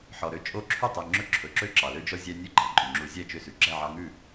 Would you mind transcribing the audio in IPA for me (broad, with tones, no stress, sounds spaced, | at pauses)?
ħ ɔ˩ ɾ ø˦ t͡ʃʼ o˥˨ ǁʰ y˥˨ tˤ ɵ˩˧˩ ŋ͡ǁ ɵ˦ ǁʰ ɵ˩˧˩ ǁ ø˥˨ ǁ ɑ˩ l ø˥˨ d͡ʒ ɔ˦ zʲ æ˦ nʲ ʉ˥˨ ɡ͡ǃ æ˩ ǃʼ y˩ ŋ͡ǁ u˨˥ zʲ æ˥˨ t͡ʃ ø˦ s ʉ˩ ɡ͡ǁ æ˥˨ ʕ ɑ˦ ŋ ʉ˥˨